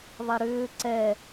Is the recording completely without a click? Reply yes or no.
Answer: no